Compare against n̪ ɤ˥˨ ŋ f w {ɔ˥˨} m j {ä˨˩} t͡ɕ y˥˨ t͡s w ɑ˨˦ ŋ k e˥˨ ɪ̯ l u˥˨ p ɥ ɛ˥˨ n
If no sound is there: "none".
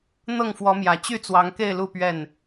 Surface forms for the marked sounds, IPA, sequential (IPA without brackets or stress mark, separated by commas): ɔ˨˦, ä˨˩